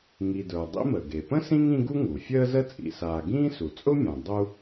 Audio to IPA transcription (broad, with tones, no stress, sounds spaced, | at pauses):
ŋ i˨ d ə˞˩ dˤ ḭ˦ m ə˩ ɡ e˩ p ə̃˥ s ĩ˥ ŋ ĩ˦ ɡ u˥ ŋ u˩ fʲ əː˦ z ə˦ t͡sʼ ḭ˨ s aː˨ ɡ ĩː˥ s u˩ t͡sʼ ʊ˥ mʲ ã˩ dˤ u˦